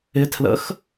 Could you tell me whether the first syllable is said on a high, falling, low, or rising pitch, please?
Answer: rising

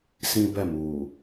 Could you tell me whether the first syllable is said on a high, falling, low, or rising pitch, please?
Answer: high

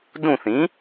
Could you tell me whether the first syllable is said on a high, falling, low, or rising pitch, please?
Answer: falling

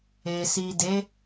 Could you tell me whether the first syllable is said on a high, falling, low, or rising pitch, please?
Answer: low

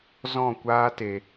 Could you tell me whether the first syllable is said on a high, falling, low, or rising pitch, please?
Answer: falling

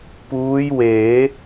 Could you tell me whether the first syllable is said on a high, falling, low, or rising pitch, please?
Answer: rising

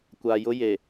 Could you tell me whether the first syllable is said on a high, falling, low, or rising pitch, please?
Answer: low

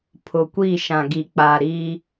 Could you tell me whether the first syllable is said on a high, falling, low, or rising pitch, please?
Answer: low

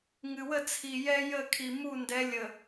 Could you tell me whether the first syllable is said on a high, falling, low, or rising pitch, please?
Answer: low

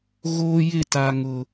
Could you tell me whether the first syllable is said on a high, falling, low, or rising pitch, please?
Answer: high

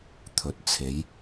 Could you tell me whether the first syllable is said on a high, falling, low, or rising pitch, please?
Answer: rising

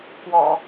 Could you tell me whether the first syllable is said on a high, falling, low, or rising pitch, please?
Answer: low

